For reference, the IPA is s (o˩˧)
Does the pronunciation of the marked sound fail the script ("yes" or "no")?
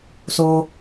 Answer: yes